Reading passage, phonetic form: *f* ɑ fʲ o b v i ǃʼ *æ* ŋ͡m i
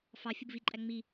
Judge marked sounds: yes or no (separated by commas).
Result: yes, yes